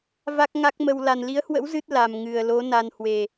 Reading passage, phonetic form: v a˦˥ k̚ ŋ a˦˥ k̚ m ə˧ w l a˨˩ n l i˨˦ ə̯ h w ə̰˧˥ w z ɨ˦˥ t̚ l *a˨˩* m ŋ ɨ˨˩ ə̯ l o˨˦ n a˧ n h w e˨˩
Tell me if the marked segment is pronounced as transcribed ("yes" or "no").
yes